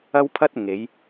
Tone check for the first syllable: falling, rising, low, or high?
high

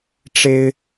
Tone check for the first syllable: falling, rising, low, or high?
high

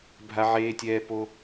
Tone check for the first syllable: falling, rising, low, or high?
high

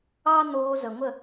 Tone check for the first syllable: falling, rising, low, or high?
high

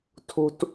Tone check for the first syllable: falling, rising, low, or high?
high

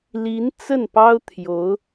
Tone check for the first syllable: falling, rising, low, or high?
rising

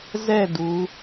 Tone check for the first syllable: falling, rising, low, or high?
falling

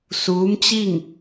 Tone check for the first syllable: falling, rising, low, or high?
rising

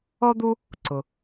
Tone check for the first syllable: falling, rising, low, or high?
high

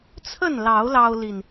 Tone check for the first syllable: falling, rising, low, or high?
falling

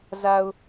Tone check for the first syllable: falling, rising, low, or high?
low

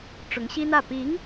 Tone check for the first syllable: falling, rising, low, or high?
rising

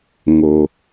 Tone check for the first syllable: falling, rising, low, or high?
low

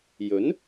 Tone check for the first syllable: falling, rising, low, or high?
rising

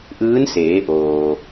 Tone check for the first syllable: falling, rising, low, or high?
rising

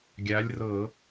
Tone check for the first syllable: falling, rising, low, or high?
rising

